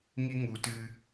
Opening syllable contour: high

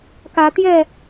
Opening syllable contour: rising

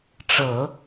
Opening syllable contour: low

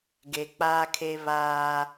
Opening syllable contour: low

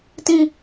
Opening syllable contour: low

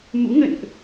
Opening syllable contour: rising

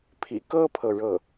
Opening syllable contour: low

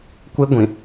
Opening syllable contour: high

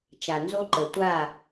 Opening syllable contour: low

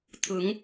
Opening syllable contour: rising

